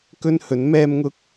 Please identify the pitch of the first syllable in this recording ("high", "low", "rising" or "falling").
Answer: high